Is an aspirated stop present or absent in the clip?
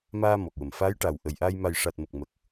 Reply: absent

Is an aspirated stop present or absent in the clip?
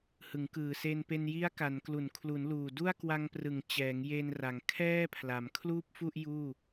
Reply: present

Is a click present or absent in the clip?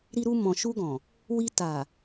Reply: absent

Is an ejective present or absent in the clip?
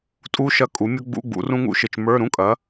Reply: present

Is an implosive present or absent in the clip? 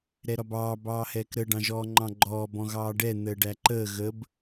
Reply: absent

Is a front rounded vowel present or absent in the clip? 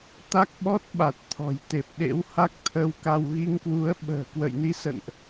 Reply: absent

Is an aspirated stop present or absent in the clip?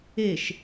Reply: absent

